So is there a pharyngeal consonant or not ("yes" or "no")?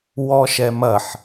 yes